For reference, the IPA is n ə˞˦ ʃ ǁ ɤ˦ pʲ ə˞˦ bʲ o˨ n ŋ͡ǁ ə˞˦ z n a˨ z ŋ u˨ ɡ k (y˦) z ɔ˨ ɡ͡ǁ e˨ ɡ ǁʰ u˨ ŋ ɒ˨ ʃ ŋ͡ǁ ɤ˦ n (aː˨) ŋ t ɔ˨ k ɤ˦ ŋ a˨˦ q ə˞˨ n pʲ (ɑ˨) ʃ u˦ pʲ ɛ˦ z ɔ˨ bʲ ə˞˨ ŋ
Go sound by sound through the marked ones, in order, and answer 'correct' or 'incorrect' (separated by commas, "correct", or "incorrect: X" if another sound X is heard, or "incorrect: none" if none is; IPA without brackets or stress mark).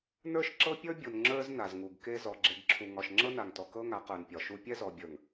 incorrect: e˦, incorrect: a˨, incorrect: ɒ˨